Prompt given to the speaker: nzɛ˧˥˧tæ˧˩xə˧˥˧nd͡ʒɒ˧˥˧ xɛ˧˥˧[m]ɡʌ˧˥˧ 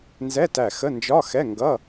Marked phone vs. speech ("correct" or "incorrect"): incorrect